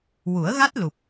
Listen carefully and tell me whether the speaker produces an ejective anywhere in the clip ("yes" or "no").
no